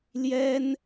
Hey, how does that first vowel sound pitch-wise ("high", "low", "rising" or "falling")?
high